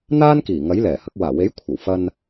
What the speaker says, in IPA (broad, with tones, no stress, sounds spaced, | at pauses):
n̪ aː˥ n k iː˨˩ ŋ ɐ˨˥ j l ɛː˨˩ h ɐ˨˥ k̚ w aː˨˩ w e˨˥ j kʷʰ ɐ˨˩ w f ɐ˧ n